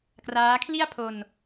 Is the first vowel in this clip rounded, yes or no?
no